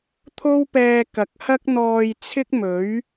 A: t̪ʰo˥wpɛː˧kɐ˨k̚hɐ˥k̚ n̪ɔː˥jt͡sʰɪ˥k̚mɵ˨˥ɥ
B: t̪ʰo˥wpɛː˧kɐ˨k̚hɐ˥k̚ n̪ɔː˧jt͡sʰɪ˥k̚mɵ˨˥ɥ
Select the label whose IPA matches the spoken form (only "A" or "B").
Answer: B